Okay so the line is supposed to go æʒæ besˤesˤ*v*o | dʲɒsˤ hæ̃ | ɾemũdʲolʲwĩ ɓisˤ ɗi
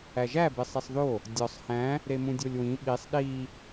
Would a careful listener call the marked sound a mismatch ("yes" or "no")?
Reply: yes